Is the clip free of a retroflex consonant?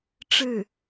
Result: no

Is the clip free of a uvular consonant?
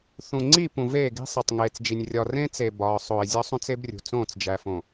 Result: yes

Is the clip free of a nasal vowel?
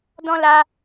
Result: no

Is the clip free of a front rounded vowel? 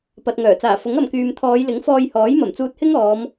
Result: no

